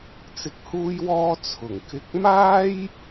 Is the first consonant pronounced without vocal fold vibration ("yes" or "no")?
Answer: yes